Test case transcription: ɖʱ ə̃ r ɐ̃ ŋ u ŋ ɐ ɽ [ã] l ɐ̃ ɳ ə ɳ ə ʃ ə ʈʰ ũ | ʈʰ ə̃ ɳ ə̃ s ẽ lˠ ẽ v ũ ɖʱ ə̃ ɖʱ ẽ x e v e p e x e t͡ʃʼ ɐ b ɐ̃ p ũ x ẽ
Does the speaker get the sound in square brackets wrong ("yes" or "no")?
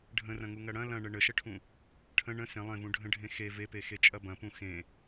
yes